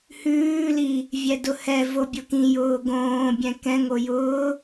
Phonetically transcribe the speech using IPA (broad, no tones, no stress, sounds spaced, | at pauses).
h ʉː l i | vʲ ɛ d ʊ h ɛ v o bʲ ʊ k ĩ j ʊː ɡ õː bʲ ɛ̃ k ɛ̃ ŋ o j ʊː